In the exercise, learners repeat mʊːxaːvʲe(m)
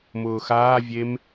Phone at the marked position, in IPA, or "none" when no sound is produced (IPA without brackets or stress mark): m